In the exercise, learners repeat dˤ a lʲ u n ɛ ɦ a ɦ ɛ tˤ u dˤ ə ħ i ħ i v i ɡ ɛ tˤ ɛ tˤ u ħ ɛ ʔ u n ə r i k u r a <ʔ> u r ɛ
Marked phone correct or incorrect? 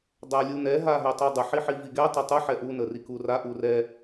correct